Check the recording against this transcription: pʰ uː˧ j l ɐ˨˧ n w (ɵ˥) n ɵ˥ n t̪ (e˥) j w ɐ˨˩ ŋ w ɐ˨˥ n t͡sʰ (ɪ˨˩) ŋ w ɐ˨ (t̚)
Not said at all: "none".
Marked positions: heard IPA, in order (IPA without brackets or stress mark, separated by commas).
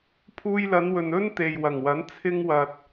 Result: ɵ˨, e˨, ɪ˧, t̚